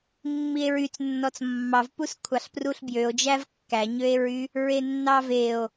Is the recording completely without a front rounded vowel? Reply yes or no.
no